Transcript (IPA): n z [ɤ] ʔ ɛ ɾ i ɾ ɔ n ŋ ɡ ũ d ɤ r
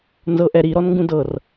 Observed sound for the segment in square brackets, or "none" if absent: ɤ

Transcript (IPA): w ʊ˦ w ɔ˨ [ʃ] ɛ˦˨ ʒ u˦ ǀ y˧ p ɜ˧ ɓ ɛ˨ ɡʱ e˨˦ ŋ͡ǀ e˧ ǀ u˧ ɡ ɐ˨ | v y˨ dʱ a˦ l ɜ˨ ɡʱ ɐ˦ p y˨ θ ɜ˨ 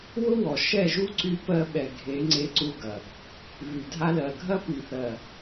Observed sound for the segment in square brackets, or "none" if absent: ʃ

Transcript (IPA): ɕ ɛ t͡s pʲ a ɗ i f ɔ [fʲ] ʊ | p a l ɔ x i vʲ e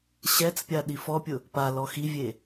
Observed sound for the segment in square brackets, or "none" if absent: pʲ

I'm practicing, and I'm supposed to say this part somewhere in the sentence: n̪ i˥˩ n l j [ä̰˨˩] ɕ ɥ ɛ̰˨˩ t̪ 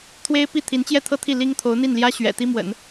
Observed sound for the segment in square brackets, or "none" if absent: ä˥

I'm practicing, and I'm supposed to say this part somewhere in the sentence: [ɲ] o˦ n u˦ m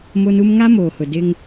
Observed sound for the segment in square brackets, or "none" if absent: m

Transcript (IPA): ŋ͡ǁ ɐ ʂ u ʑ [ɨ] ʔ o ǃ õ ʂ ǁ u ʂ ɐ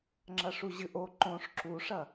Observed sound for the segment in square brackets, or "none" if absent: ɨ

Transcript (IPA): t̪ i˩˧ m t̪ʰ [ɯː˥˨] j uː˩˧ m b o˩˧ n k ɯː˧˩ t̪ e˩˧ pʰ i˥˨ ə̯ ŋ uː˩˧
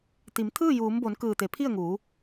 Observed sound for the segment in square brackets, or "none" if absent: ɯː˥˨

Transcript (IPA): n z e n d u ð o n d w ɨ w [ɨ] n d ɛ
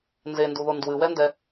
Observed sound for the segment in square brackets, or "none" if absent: ɛ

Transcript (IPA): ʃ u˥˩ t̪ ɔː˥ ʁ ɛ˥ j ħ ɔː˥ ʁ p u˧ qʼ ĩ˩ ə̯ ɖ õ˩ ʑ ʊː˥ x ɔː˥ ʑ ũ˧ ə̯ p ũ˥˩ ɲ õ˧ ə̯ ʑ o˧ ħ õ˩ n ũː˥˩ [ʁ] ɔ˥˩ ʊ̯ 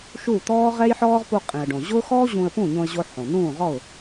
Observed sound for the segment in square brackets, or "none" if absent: ʁ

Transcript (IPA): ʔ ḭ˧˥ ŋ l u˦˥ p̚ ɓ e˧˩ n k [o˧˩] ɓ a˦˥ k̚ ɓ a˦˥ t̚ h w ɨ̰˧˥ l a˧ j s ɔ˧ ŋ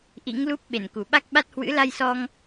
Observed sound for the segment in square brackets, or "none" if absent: u˧˩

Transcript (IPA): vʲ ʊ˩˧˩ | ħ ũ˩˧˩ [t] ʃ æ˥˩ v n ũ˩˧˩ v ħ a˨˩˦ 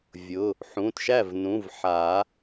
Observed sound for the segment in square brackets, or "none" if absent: t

